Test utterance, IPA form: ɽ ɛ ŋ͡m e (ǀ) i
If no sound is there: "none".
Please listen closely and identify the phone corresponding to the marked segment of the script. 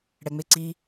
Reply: ǀ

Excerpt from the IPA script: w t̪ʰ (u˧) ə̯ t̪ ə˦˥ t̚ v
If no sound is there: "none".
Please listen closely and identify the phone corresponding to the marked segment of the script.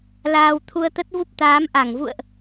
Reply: u˧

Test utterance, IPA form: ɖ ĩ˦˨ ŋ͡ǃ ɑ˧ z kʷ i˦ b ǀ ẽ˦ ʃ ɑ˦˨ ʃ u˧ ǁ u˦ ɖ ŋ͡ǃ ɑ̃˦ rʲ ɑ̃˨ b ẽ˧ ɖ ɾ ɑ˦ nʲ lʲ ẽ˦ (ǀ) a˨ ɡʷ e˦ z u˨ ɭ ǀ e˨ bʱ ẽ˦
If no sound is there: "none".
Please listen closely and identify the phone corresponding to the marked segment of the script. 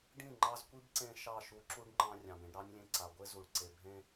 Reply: ǀ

